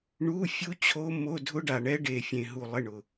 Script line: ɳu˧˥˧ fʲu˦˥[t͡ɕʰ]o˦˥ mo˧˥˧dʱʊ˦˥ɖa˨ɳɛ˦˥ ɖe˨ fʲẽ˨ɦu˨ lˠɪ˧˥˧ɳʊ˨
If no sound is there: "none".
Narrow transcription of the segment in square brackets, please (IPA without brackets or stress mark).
t͡ɕʰ